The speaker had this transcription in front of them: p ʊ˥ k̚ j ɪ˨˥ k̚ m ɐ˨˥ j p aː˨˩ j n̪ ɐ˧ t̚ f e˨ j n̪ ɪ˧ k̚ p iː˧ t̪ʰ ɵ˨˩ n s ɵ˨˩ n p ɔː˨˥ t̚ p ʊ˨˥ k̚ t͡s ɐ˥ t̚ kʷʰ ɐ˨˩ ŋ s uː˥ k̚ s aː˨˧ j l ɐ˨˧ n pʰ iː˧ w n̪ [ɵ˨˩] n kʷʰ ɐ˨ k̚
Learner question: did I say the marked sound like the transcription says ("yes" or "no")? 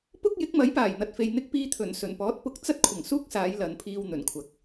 yes